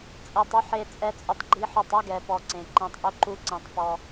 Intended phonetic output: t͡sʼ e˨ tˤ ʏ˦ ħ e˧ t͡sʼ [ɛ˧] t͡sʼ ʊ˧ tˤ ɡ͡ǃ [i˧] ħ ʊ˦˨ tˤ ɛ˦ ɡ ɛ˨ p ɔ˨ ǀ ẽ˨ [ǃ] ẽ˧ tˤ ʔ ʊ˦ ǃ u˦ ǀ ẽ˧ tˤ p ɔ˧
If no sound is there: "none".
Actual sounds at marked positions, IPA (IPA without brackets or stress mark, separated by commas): ɛ˧, i˧, ǃ